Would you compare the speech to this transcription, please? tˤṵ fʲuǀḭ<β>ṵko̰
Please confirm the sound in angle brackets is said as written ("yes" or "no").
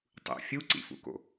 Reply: no